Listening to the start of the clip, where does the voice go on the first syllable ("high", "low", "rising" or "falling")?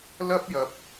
high